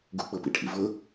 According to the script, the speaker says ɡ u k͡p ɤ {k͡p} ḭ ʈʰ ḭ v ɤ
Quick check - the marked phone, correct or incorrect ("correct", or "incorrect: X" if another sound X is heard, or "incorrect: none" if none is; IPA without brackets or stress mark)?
incorrect: p